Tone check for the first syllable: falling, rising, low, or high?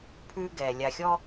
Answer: high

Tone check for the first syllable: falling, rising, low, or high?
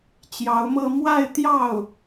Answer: rising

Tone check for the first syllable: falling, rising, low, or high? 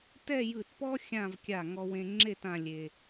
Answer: falling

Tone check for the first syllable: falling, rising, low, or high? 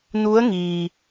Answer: rising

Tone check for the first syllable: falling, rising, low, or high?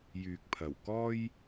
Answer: low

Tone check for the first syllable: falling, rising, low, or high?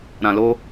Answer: low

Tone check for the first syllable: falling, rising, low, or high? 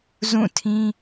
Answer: falling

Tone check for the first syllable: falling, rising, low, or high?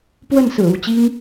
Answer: falling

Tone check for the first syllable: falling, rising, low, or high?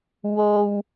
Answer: low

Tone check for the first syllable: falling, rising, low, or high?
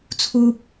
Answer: high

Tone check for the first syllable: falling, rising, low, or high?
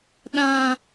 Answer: high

